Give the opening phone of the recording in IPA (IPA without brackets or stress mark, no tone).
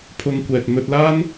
pʰ